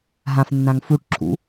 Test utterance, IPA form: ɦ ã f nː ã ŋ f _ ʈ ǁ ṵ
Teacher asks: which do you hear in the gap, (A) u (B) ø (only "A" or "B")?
A